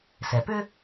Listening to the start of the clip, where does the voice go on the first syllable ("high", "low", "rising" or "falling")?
low